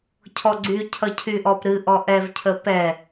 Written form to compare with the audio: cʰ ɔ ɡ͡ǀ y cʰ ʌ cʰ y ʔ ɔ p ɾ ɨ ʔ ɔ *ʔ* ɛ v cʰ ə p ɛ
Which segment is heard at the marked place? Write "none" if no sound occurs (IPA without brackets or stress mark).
ʔ